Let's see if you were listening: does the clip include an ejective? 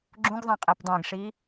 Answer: yes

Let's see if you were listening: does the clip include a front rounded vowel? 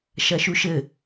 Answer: no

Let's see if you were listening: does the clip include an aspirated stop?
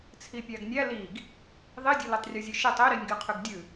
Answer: yes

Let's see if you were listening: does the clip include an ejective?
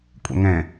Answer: yes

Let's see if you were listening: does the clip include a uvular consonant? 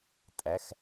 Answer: no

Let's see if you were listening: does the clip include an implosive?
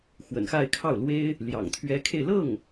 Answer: no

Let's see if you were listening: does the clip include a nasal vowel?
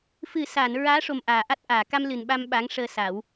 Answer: no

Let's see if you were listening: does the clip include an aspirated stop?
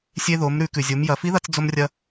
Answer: no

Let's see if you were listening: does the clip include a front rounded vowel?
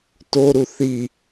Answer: no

